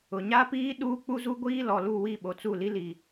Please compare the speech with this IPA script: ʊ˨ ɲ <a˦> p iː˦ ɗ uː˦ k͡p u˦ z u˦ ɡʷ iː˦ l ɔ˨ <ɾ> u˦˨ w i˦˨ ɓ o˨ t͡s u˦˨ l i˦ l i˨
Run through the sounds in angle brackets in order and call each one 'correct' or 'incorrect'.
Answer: correct, incorrect

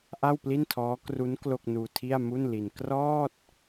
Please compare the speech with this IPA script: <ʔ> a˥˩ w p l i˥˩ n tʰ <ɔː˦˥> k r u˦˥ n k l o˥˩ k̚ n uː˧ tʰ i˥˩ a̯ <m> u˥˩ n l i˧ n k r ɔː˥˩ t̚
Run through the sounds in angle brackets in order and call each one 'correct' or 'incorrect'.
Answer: correct, correct, correct

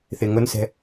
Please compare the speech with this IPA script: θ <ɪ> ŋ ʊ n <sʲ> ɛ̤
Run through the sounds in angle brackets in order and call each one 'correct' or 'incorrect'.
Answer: correct, incorrect

